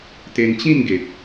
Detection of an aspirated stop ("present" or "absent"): absent